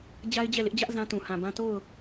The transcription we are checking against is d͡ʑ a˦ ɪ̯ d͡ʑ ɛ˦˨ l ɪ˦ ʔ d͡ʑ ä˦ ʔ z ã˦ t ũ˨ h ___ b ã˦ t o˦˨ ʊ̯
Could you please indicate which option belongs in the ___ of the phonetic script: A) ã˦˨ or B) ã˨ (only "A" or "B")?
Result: B